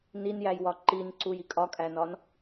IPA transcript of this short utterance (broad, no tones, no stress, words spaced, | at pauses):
ninjæj wɒǃinǀuj ikʼɒkʼænɒn